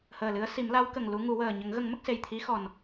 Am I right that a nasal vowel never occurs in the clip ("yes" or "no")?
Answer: yes